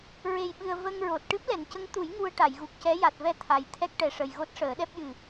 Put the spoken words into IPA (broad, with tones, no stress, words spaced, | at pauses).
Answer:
ɹe˨˩jɓɨ˨˩ə̯ və˧ŋɹo˨˩t̚ ʈɨ˦˥p̚lɛ˨˩˨ncə˧˥ŋt̪u˨˩˦j ŋu˧ə̯ʈa˨˩˨jɣu˨˩k̚cɛ˧˥ ja˨˩t̚vɛ˧ t̪ʰa˨˩j t̪ʰɛ˦˥k̚ʈɛ˨˩ʂə˨˩j ɣo˦˥t̚ʂəː˨˩˦ɗɛ˦˥p̚jɨ˨˩